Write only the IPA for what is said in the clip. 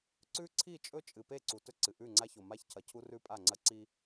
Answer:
ǀ ʉ˦ ǀʰ i˦˨ t͡ʃʼ ɵ˦ t͡ʃʼ ɨ˨ p e˦˨ ǀ u˨ t ɵ˦ ǀ ɨ˨ ʔ ʉ˦˨ ŋ͡ǀ a˦ ç o˨ m a˦ ç cʰ ɐ˨ cʰ u˦ r ʉ˦ pʼ a˦˨ ŋ͡ǀ ɐ˦ ǀ i˦

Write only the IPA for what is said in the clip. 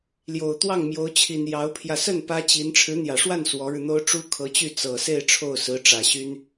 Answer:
l j o˨˩ ʊ̯ t̪ w ɑ˥˩ ŋ m j o˧˥ ʊ̯ t͡ɕʰ i˨˩ n j ɑ˧˥ ʊ̯ pʰ j ä˧ s ə˥˩ n p ä˥ t͡ɕ i˧˥ n ʈ͡ʂʰ ɻ̩˧˥ n̪ j ä˨˩ ʂ w a˥˩ n s w ɔ˧˥ ɻ ɻ̩˧ n̪ o˥ ʊ̯ ʈ͡ʂ u˥ kʰ ɤ˧˥ t͡ɕ y˥˩ t͡s ɤ˨˩ s e˥˧ ɪ̯ ʈ͡ʂʰ o˥˩ ʊ̯ s ɹ̩˧˥ ʈ͡ʂ ä˨˩ ɕ y˥ n

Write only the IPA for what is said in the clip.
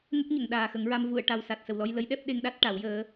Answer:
ŋ ə˦˥ k̚ ɲ ə˨˩˨ ŋ ɗ aː˨˩ x ə˨˩˦ ŋ ɹ a˧ m v u˨˩˨ ə̯ ʈ a˨˩ w s a˨˩ t̚ s ə˨˩ w l ɔ˧ j l ə˧˥ j ɗ ɛ˦˥ p̚ ɗ e˧ ŋ ɗ a˦˥ t̚ ʈ a˨˩˦ w j əː˧˥

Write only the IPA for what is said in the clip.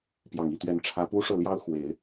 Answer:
p j ɑ˨˩ ŋ i˥˩ t̪ ɥ ɛ˧˥ n ʈ͡ʂʰ ä˧˥ p u˥ ʂ ɤ˥˩ l j ɑ˥ ʊ̯ x w e˨˩˦ ɪ̯

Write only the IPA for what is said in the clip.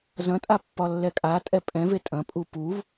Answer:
z ɐ̃ tʼ a pː ɒ lː ɛ kʼ a tʼ ɛ pʼ ɛ̃ v e tʼ ɐ̃ pʼ u p u v

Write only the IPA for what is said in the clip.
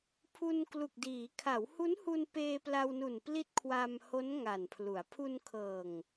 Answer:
pʰ u˧ n k l u˨˩ k̚ d iː˩˦ kʰ a˩˦ w h u˦˥ n h u˧ n p eː˧ p l a˧ w n u˨˩ n p l i˦˥ t̚ kʰ w a˧ m h o˦˥ n ŋ a˨˩ n pʰ l u˩˦ a̯ pʰ u˧ n kʰ ɤː˨˩ ŋ

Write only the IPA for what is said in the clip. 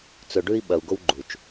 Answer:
t͡s ɵ˨ ɖ ʉ˦ i̯ ɓ ɐ˨ u̯ ɡ o˦ w ɡ͡ǃ u˨ t͡ʃ

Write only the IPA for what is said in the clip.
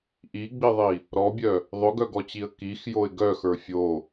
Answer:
ʔ i ɡ͡b i ðˤ i | ɾ ɔ bʲ œ | ðˤ ʊ ɡ œ ɡ ɔ t͡ɕ i ə̯ k i x j o ɪ̯ ɡ œ x ə˞ fʲ o

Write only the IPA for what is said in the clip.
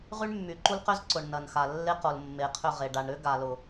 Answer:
ʁ y˦ ɳ mː y˨ ǃ u˦ l q ʏ˦ z ǀ ʊ˨ ɳ n ɐ˨ n x a˨ lː e˦ q o˨ l mː e˨ qʰ ʏ˦˨ ʁ e˨ ɖ a˨ ɳ ɾ ʏ˦ ɡ a˨ l ʊ˨

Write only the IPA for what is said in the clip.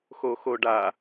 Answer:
x o x o ɖ a

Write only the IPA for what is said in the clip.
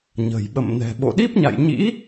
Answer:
ɲ ə̤˨˩ j ɓ ə̰˧˨ m n ɛ̤˨˩ ɓ o̰˧˨ ɗ i˦˥ p̚ ɲ a̰˧˨ j ɲ ḭ˧˥

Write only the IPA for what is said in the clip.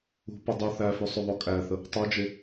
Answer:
ṳ p ə dˤ u θ æ f ʉ sˤ ʉ ðˤ o kʼ æ θ ə | tˤ o d͡ʒ e

